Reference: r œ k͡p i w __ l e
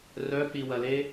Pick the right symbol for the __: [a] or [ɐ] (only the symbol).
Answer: ɐ